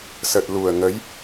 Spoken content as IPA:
s ə˨˩ t̚ l u˨˩ ə̯ ŋ ə˨˦ j

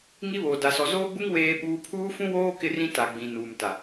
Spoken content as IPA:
ŋ i˦ β oː˨ d a˦ s ɔ˦ z oː˦ ɡ͡b u˦ ŋ w eː˦ ɓ uː˦ pʰ uː˦ f ũ˦ w oː˦ k ɪ˦ r ĩ˦ t a˨ ɡ͡b ĩ˨ n uː˨ m t a˨

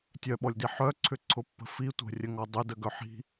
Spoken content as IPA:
tʲ œ ɓ ɔ lʲ d i ħ œ ǀʰ ʏ ǀʰ ʊ pː ə̤ f i tʷ ə̤ rʲ ə ŋ ɔ dˤ ʏ d ə ɡ œ ħ i̤

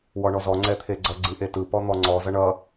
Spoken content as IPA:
w ɔ ɳ ɔ z ɔ ŋ͡ǀ ɛ t̪ʰ e ɡ͡ǀ ʌ ɡ͡ǀ ɯ ʔ e t ɯ p ɔ n̪ ɔ ŋ͡ǀ ɔ z ʌ ɳ ʌ

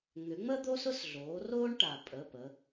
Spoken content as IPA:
ŋ ʏ˩˧ ŋ͡m ə˦ d̪ o˦ s ʊ˦ s ɮ oː˩˧ r oː˦ ɳ ʈ a˩ pʼ ə˩˧˩ p ə˩˧

